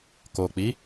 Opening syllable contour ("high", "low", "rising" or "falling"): low